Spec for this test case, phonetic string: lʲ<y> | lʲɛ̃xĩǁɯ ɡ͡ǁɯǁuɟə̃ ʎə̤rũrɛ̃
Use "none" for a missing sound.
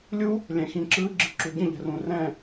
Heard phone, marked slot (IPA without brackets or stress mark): u